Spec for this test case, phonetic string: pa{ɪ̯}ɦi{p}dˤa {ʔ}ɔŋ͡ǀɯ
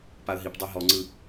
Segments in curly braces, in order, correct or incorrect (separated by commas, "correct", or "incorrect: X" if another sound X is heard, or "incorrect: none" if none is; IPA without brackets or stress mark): incorrect: ə̯, correct, incorrect: ɦ